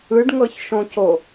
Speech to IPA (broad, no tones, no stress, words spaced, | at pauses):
ɯɖŋɤçʃõco